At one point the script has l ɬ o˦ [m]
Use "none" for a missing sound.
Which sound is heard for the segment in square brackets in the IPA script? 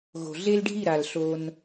n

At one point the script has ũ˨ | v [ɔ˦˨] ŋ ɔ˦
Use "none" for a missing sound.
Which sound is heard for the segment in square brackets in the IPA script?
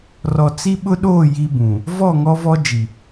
ɔ˦˨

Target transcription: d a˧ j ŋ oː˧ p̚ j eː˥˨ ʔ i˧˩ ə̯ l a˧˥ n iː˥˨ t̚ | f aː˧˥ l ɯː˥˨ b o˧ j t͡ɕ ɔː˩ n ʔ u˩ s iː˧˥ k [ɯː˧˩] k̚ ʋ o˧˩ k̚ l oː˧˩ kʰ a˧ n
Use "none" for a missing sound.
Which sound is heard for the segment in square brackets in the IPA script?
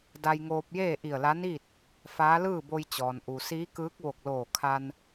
ɯː˧˥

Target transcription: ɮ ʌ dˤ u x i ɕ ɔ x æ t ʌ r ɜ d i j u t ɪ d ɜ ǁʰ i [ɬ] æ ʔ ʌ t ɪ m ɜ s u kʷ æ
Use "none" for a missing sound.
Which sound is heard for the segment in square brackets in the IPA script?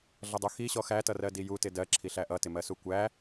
ɬ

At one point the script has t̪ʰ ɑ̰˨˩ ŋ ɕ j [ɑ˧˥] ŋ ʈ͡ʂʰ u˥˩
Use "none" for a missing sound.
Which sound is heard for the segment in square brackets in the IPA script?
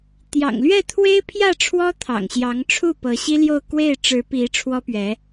ɑ˧˥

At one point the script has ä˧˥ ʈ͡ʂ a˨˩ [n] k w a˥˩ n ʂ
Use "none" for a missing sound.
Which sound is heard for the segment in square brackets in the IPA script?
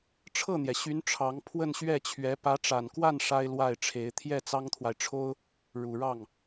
n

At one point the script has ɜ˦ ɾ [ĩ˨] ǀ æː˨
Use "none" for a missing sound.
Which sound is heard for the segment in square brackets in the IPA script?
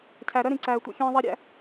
ĩ˨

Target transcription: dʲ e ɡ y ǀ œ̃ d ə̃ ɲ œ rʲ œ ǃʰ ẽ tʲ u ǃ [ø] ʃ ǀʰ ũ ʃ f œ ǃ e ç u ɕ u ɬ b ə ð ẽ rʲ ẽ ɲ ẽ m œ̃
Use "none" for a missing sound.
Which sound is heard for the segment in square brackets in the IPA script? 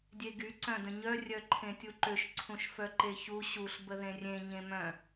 ø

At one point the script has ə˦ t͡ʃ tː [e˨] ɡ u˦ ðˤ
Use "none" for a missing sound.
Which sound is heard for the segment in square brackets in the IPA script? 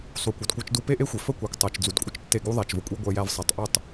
e˦˨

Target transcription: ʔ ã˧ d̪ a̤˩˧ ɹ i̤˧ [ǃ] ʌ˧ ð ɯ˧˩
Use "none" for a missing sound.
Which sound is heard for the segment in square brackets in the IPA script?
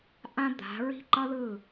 ǃ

